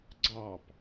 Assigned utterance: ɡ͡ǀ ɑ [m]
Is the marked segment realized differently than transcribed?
yes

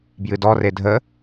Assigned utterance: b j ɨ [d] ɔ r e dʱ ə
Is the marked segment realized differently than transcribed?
no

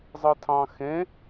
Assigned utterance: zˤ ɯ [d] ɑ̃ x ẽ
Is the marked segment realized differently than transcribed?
yes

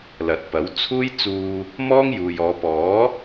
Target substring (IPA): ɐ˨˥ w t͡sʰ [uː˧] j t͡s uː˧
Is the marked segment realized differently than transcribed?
yes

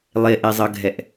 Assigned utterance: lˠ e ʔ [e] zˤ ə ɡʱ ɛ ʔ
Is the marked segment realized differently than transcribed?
no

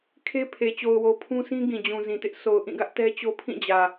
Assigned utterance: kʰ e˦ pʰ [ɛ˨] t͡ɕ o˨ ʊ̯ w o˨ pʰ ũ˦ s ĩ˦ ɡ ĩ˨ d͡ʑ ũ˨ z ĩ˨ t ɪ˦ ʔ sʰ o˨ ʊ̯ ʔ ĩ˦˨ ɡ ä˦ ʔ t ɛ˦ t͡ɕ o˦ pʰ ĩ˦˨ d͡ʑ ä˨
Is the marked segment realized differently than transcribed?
yes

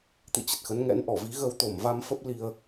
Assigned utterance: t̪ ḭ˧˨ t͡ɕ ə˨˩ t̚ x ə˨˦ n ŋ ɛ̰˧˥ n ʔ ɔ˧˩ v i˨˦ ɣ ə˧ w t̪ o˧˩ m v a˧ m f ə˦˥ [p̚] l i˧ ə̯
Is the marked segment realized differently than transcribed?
no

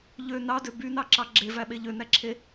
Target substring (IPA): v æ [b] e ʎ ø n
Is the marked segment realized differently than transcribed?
yes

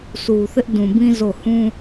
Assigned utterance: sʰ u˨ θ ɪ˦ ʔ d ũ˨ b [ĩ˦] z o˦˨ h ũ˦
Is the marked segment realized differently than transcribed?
no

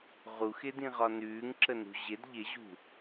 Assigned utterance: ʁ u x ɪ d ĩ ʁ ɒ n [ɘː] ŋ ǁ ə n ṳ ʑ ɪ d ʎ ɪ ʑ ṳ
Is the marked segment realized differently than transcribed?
yes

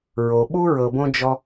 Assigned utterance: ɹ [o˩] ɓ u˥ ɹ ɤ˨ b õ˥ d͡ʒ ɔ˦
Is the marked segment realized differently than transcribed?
no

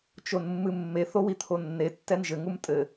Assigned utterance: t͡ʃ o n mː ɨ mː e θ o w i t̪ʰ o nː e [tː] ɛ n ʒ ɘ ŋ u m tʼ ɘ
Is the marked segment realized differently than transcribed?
no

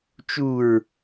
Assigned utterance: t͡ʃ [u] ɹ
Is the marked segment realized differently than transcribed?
no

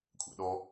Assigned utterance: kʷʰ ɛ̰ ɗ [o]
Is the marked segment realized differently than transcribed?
yes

